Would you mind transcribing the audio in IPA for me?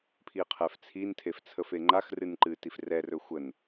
pʰ i qʰ ɛ f t͡sʰ i n tʰ e f t͡sʰ ə f e ŋ͡ǃ a x r ɨ n ǃ ɨ t i f r ɛ r ɵ xʷ ə n

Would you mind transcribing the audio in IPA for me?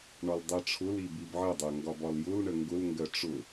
ɳ ɒ l dˤ ɜ ʈ͡ʂʰ ʊ l i b i b ʕ ə dˤ ɜ ŋ ɡ ɒ b ɒ l j ʊ l ɳ ə ŋ ɡ ʊ l ŋ ɡ ɜ ʈ͡ʂ ʊ

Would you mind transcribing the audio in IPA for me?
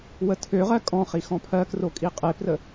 w ə tʰ ø ʁ ɜ kʼ ɔ̃ χ i x ɔ̃ pʰ ɜ k r o kʼ i qʼ e p r ə

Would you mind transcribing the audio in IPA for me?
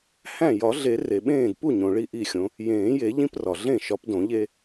h æ̃˥˩ j ɒ˨˩˦ ɮ e˨˩˦ r e˩ ɓ ẽː˥˩ d p u˥˩ ɲ õ˩ ɭ i˥˩ ʔ i˥˩ xʲ õ˨˦ | j ẽː˨˩˦ j e˨˩˦ ʎ ĩ˦ p r ɒ˩ ɮ ẽ˥˩ ʃ ɒ˨˦ p d õ˨˩˦ ʎ e˦

